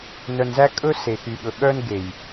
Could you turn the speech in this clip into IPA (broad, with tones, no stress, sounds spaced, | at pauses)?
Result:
n œ˨ n z æ˦ kʼ ɵ˦ s e˨ x y˨ ɠ ɵ˨ ɠ œ˦ n ɡ e˨ j